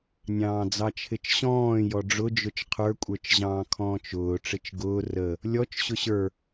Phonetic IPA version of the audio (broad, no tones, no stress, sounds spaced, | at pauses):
nʲ ɑ̃ː d͡z ɑ t͡ʃʰ ɪ t͡ʃ ɕ ɔ̃ː j ɔ ɖ͡ʐ ʊ d͡ʒ ʊ t͡ʃ qʰ ə˞ kʷʼ ə˞ t͡ʃ ʑ ɑ̃ː kʰ ɔ̃ː t͡ʃ ʊː ʈ͡ʂ ɪ t͡ʃ ɡ ʊː r ə | lʲ ɔ t͡ʃ ɕ ʊ ɕ ə˞